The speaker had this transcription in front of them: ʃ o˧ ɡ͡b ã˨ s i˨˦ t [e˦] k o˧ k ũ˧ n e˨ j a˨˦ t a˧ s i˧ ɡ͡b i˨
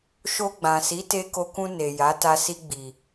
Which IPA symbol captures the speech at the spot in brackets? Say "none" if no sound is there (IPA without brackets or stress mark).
e˧